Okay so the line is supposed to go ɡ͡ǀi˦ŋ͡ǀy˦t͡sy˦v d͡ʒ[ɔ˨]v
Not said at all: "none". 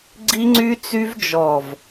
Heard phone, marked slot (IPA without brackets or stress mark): ɔ˨